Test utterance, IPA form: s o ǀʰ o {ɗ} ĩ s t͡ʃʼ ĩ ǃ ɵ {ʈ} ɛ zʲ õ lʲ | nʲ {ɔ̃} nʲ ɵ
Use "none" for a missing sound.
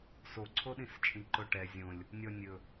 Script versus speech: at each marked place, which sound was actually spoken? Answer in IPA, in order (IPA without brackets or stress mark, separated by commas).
ɗ, ʈ, ɔ